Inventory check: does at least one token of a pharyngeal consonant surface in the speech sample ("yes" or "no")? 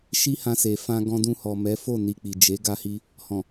no